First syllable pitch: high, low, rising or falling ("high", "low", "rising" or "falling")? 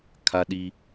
high